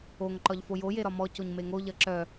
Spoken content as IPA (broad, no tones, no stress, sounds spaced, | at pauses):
o ŋ ǃ ɒ ʎ f o j o j e ɾ ɒ m ɔ c o ɲ m e ŋ o ʎ ɐ ǁ œ